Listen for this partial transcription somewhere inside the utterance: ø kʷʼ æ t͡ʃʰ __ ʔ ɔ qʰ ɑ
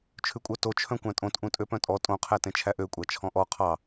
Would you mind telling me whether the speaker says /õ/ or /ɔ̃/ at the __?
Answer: ɔ̃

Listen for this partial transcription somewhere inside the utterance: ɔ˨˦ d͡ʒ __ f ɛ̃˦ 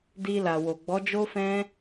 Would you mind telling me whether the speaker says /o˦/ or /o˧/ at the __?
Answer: o˦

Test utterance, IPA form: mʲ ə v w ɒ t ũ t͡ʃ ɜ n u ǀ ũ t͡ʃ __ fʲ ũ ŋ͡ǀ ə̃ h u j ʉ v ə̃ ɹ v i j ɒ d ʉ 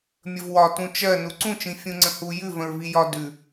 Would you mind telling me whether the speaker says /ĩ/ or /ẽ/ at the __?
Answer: ĩ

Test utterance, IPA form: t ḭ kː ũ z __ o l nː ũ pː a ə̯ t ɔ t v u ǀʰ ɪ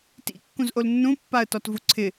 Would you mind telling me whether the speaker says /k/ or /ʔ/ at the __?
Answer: ʔ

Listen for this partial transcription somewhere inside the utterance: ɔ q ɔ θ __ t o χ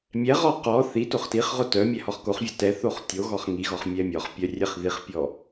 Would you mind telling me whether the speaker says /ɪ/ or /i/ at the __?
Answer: i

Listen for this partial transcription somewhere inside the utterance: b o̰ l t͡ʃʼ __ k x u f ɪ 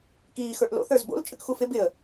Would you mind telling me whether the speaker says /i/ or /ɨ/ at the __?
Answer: ɨ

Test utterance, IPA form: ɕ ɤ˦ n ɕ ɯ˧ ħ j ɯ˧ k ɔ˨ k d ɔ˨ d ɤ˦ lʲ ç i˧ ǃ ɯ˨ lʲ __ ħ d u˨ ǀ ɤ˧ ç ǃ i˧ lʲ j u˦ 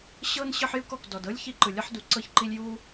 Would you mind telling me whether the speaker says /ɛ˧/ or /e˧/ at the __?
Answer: ɛ˧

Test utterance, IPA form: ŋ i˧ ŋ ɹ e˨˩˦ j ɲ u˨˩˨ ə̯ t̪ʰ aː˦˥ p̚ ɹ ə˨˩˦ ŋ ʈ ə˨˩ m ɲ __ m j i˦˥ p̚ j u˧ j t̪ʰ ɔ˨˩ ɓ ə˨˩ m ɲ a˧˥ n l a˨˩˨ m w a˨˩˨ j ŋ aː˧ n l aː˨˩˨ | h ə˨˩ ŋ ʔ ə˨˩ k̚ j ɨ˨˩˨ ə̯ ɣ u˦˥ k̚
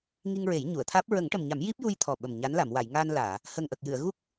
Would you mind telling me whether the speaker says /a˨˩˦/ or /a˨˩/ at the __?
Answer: a˨˩˦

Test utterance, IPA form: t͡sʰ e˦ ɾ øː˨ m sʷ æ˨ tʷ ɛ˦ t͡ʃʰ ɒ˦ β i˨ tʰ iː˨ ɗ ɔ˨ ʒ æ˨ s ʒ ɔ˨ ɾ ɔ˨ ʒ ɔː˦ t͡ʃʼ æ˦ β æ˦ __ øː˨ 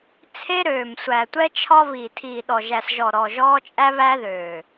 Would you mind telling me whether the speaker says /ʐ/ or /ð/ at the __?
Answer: ð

